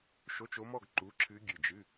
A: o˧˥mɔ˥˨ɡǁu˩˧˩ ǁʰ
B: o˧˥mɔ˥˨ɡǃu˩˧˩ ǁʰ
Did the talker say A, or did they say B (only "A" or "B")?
B